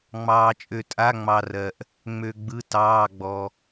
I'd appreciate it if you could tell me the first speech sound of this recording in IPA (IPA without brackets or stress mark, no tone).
ŋ͡m